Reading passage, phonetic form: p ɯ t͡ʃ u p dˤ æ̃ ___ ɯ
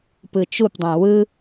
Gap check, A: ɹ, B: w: B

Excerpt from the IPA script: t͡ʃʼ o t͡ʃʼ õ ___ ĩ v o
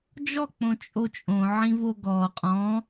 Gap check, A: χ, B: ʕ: B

